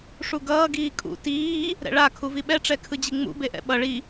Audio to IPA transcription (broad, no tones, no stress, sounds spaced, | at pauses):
ʂ u ɡ ʌː ɡ iː kʼ ṵ t iː | ɾ ɛ̰ ɭ a kʰ u v i ɓ ɛ ʈ͡ʂ ɛ kʰ ɯ d͡ʑ i ŋ͡m ṵ b e ʔ ɛ̰ ɓ ʌ ɭ i